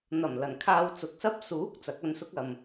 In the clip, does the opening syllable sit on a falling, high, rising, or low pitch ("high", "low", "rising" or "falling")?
low